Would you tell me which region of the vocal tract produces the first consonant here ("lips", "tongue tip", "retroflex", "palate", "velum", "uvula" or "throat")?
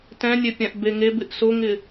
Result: tongue tip